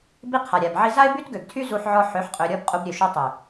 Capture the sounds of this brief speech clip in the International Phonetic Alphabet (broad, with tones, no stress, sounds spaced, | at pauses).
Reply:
b i˦ qʰ a˨ ɾʲ a˨ b ʕ i˦ z a˦ ɪ̯ b y˦ t ɡ ø˨ ɡ tʰ y˦ z u˦ ħ ʕ ɔ˦ ħ ø˨˦ ħ qʼ ø˨ ɾʲ ɔ˦ b qʼ u˦ b ɾʲ ø˨ ʃ ø˦ tˤ y˨